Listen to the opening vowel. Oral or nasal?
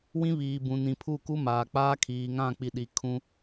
nasal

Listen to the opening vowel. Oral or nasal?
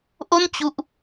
oral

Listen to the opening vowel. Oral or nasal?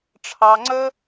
oral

